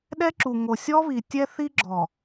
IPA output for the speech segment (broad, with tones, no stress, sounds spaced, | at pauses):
ɗ ɛ˦ ǁ u˨ ŋ o˨ sʲ ɔ˦ β i˨ tʲ ɛ˦ θ i˦ ɡ͡ǁ ɔ˨